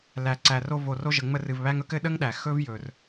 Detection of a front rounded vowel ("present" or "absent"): absent